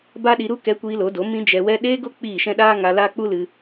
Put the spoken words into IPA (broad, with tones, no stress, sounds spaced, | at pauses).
b a˦ ɗ i˧ ɾ u˦ k ɛ˧ kʷ iː˧ l o˨˦ d o˨˦ m ĩ˧ d͡ʒ ɛ˧ w ɛ˦ ɗ eː˦ ɡ o˦ k͡p iː˦˨ ʃ ɛ̃˦ ɗ aː˦ ŋ a˧ l aː˦ k͡p u˦ l ɨ˧